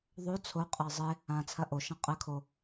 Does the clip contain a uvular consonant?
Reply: yes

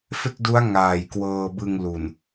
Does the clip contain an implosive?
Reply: no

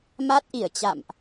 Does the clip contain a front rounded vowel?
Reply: no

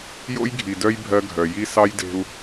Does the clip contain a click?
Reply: no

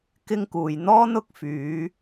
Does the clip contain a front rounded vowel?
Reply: yes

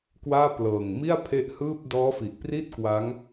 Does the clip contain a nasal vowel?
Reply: no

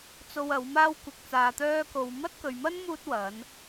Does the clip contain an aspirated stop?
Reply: no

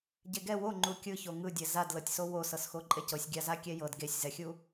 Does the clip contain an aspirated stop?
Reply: no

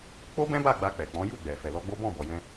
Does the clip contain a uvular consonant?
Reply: no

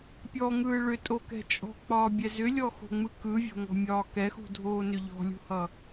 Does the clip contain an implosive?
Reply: no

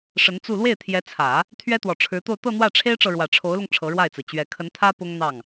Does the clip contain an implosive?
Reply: no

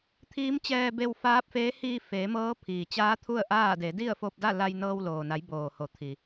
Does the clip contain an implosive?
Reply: no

